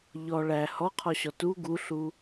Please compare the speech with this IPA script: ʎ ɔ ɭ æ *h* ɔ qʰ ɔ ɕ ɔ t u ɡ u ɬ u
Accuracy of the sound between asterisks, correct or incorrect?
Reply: correct